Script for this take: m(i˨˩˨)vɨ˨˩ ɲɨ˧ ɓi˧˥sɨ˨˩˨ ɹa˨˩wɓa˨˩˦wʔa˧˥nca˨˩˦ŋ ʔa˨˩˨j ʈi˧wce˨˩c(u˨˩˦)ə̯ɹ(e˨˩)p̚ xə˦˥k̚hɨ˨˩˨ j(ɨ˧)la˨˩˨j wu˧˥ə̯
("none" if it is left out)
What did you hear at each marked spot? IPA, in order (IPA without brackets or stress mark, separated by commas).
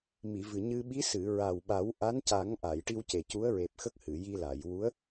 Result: i˨˩˨, u˧˥, e˨˩, i˧